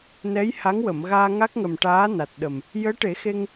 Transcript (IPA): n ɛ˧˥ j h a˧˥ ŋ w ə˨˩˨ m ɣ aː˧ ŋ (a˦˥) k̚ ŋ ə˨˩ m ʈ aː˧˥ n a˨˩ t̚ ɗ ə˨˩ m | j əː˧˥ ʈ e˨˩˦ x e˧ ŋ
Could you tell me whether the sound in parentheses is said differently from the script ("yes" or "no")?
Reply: no